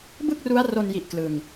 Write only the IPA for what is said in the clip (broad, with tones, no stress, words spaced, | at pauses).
bɯ˥˩k̚ru˦˥a̯ro˧n ji˦˥ʔklɯ˧ŋ